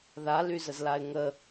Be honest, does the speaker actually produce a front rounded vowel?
yes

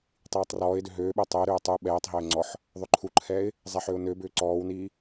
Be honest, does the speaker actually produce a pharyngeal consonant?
yes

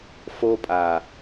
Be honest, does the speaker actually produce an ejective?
yes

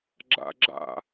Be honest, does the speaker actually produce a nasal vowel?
no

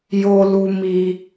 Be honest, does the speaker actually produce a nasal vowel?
no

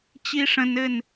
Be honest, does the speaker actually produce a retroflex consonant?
yes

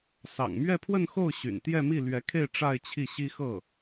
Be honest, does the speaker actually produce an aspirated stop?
yes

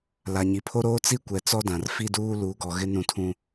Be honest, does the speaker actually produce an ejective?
no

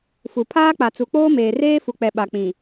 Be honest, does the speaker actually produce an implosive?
yes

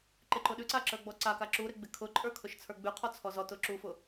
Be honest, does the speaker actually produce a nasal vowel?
no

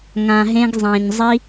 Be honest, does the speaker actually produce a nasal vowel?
yes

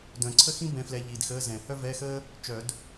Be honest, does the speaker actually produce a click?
yes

